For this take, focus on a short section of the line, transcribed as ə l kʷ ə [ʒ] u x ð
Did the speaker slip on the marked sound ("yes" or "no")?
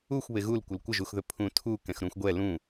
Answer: no